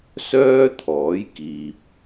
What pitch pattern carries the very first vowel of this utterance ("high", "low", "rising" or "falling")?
high